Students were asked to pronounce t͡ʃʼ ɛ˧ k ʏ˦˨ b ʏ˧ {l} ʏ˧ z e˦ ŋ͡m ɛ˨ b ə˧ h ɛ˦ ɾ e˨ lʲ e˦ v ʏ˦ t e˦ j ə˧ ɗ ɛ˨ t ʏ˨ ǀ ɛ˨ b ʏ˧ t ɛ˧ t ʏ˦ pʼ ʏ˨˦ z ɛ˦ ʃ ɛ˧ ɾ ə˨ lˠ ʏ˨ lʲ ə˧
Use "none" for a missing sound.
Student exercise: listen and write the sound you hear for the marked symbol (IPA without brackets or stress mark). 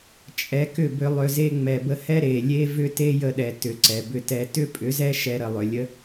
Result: lˠ